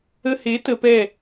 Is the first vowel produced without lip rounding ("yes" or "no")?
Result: yes